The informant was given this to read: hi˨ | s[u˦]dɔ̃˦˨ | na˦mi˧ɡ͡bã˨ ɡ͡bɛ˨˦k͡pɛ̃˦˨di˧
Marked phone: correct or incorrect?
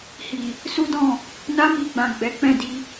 correct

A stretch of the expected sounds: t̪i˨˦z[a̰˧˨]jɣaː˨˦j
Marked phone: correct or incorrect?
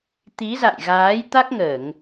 correct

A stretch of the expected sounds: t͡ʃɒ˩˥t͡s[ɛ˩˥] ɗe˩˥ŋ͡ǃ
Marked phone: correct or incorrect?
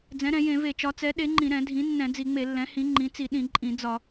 correct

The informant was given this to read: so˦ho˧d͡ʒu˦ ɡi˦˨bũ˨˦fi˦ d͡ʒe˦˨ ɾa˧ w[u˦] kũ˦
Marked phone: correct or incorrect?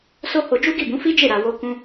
incorrect: o˦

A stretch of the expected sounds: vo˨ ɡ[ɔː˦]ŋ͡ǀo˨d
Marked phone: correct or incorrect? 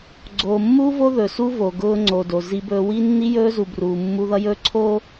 incorrect: ʊː˦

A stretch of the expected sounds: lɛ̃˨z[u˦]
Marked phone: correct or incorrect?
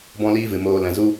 correct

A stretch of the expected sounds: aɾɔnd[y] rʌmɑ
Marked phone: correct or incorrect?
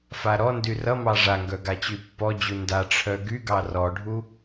correct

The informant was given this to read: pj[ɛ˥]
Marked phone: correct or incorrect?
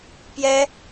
correct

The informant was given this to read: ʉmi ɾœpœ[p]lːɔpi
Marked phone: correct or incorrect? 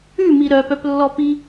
correct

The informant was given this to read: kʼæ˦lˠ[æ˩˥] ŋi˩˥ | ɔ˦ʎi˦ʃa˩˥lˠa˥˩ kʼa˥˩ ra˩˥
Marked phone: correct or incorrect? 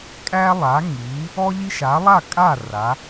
incorrect: a˩˥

